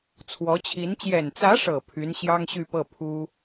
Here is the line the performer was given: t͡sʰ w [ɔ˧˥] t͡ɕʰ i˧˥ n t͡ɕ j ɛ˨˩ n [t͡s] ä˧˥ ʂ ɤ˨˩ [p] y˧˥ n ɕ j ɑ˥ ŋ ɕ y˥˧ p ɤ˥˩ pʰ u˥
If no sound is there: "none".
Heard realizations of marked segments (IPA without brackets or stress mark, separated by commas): ɔ˧˥, t͡s, pʰ